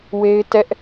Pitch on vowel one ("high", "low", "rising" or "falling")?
high